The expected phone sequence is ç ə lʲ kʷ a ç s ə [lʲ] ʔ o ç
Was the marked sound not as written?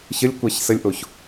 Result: no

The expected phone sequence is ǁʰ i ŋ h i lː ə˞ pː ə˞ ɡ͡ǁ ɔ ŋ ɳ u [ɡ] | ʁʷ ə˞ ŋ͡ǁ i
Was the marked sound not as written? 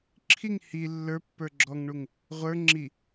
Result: yes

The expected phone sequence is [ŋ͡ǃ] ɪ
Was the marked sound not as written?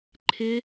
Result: yes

